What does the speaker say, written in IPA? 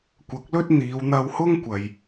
kʷ ɐ˨˥ k̚ l ɵ˥ t̚ n̪ iː˨˧ w n̪ ɐ˧ w h ʊ˥ ŋ kʷ ɐ˨ j

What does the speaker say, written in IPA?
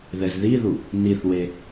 ð ɛ z ð i ð u | n i θ w e

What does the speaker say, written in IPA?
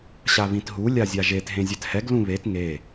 ɕ a β ĩ t ɦ u lʲ a zʲ a ʒ e t ɦ ẽ zʲ ɛ t h ɛ ɡ l ũ β e t ŋ e

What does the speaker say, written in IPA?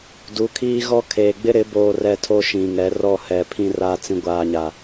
d u˨˦ kʰ iː˦ ɣ ɔ˦ kʰ eː˨ ɡ͡b ɪ˦ ɾ ɪ˨˦ b oː˨ r ɛ˨ tʰ o˦ ʃ ĩ˨ ŋ ɛ˨˦ r ɔ˦˨ h ɛ˨ pʰ ĩ˨ r a˨ t͡s ĩ˨ ɡʷ aː˨ ɲ a˨

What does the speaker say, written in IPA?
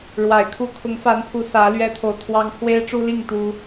ɻ w a˨˩ ɪ̯ kʰ u˦ kʰ ʊ˨˦ ŋ f a˨˦ n pʰ u˨˦ s ä˨˦ l ɥ ɛ˦ t̪ʰ o˨ ʊ̯ t̪ʰ w ɑ˦ ŋ pʰ w e˦ ɪ̯ ʈ͡ʂ u˦ l i˥˨ ŋ t̪ u˦

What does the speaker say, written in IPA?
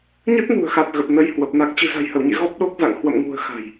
ɲ ə˦˥ t̚ n ṳ˨˩ ə̯ x a˨˩ t̚ ɣ ə˨˩ p̚ n ə˨˦ j h w ə˨˩ p̚ n a˨˩ k̚ t͡ɕ ɨ̤˨˩ z a̤˨˩ j h ə˧˩ w ɲ ḛ˧˨ ɣ ɔ˦˥ p̚ ɗ o˦˥ k̚ z a̰˧˨ ŋ h w ə̰˧˨ m ŋ ṳ˨˩ ə̯ x a̤˨˩ j

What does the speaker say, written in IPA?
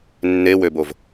nː e w ø b o v

